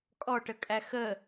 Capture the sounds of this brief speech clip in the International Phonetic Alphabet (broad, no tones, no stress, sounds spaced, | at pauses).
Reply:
kʼ ɔ ʈ ə kʼ æ x ə